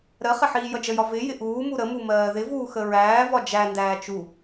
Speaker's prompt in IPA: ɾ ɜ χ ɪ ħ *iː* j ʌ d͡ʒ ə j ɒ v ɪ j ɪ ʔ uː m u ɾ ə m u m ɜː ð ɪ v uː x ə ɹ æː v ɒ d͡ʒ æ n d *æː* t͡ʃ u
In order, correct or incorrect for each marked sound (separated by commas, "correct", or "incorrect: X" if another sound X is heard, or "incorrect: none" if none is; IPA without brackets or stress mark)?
correct, correct